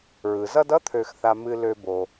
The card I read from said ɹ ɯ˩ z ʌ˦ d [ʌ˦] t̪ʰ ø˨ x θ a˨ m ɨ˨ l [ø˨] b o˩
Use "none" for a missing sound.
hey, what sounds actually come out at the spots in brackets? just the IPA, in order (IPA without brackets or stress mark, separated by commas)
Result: ʌ˥, ø˨